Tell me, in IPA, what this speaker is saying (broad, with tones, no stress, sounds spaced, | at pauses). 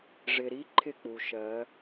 ʐ ɪ˨ ɾ i˦ ǃʰ ɪ˦˨ k͡p u˨ ʃ ɜ˨˦